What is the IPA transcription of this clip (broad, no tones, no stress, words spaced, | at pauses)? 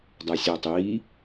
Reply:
dˤæsʲɒ tˤiː